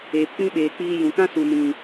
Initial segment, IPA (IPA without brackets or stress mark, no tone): eː